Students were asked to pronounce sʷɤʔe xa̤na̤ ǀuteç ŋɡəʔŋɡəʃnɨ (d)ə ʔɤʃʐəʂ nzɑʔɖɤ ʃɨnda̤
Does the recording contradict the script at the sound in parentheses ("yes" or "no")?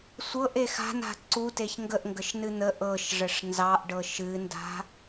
yes